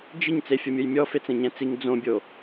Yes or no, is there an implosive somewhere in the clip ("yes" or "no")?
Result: no